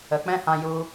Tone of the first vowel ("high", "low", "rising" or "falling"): low